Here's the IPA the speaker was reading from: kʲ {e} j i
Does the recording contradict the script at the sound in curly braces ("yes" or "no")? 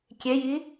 no